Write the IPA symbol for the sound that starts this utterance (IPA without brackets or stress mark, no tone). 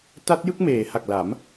t